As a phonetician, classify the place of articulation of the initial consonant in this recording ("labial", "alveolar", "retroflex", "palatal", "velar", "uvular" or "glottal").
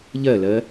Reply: palatal